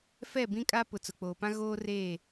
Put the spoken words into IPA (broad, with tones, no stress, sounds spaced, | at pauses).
f ɛ˦˨ b ĩ˦ kʼ a˦ p ʊ˨ t͡s ʊ˨ k͡p oː˨ p ã˦ ɣ oː˦ r eː˦˨